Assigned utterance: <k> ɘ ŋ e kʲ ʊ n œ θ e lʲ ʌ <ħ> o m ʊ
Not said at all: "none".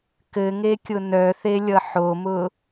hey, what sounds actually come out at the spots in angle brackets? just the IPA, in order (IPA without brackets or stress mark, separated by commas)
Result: k, ħ